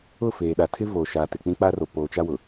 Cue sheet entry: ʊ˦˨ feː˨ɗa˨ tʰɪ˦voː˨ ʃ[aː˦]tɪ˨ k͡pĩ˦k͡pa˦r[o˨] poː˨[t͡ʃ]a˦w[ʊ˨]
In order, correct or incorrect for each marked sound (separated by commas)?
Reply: incorrect, correct, correct, correct